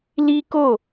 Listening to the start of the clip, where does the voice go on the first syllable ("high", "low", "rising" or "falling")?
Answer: high